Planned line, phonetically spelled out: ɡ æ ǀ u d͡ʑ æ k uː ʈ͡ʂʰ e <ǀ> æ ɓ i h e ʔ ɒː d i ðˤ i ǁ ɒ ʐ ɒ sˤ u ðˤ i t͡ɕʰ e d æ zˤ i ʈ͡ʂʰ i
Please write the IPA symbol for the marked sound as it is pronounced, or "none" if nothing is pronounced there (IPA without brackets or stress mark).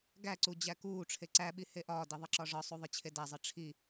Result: ǀ